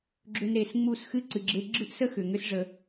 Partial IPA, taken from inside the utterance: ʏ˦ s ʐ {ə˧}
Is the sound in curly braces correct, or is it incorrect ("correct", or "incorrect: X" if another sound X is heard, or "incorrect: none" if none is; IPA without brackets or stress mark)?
correct